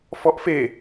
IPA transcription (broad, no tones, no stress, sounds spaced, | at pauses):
f ɔ ʔ f e